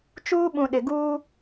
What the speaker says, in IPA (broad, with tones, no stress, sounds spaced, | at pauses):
t͡ʃ uː˦ ɓ ũ˨ ɗ ɪ˨ ɡ uː˦